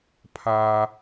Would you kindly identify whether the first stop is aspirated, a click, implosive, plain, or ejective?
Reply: aspirated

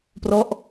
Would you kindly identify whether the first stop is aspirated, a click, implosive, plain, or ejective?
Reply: plain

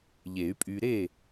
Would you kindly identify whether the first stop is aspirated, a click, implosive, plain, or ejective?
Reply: ejective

